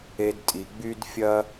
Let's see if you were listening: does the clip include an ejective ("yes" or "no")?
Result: yes